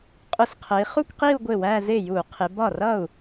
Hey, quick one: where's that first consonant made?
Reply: uvula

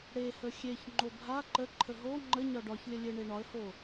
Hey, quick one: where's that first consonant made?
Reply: retroflex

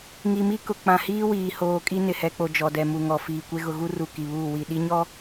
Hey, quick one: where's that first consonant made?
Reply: velum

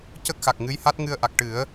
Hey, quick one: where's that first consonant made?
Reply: palate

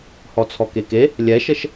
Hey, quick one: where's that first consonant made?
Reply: throat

